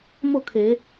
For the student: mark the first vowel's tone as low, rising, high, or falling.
falling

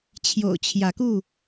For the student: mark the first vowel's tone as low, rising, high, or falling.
low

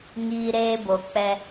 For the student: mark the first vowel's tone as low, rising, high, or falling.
high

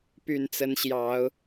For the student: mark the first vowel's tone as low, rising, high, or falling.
low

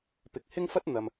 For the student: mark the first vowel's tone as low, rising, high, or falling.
low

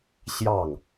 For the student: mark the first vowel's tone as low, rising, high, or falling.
falling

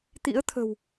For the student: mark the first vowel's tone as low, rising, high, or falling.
rising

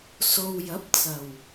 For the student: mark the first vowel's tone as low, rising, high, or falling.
low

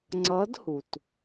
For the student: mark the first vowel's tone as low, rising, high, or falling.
rising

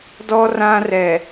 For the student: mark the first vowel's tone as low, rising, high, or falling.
high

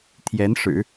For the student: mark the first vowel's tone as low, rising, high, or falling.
rising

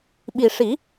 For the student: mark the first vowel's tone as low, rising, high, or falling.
low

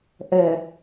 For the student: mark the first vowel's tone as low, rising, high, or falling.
low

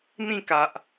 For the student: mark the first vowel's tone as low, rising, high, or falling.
falling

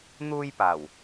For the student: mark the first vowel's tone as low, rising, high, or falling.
high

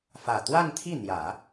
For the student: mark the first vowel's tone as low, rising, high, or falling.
low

